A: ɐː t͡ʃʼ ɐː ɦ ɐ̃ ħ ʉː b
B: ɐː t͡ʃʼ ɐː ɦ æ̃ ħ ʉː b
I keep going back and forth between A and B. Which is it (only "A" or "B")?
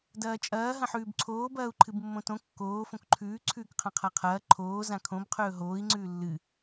A